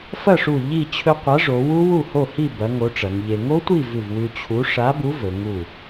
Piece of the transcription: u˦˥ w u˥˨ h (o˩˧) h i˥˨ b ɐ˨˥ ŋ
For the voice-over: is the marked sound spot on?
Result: no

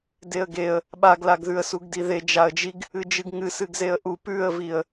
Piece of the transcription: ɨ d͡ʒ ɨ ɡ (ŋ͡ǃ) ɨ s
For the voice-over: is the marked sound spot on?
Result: no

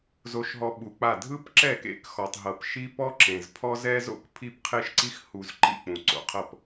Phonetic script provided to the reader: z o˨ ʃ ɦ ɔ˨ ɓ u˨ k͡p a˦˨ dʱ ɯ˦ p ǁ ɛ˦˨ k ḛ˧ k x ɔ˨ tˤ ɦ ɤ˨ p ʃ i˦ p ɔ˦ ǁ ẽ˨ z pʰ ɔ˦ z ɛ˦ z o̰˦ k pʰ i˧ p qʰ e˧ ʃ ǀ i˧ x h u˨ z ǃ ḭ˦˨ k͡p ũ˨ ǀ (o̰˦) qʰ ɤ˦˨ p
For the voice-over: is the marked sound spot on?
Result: no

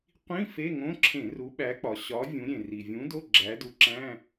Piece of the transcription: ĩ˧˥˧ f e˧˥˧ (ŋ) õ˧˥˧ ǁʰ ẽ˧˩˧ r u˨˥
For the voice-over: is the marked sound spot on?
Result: yes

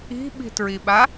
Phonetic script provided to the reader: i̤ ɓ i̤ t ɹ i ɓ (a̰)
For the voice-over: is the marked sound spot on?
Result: no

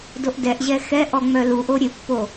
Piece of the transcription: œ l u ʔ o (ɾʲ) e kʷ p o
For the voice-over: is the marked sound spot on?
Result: yes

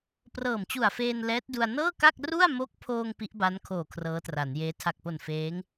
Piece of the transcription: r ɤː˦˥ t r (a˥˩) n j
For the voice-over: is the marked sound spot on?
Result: no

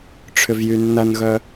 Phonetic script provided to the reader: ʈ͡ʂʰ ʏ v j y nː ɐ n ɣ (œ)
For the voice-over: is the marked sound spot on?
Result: yes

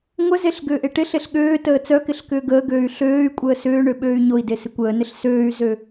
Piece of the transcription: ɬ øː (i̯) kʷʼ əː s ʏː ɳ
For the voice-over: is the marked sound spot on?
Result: no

